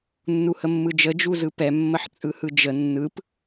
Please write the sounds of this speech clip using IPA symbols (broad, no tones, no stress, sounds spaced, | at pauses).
nː u h ə mː ɯ d͡ʒ ə d͡ʒ u z ɯ p ɛ mː ə ħ t͡sʼ ɯ h ɯ d͡ʒ ə nː ɯ p